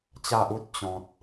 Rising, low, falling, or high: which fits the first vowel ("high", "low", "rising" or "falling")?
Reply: low